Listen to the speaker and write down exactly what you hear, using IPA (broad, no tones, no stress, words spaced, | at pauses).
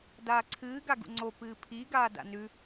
daːǀʰɨː ɡaɡṵŋ͡ǀo pɨːpʰi ɡaːda̰nʉ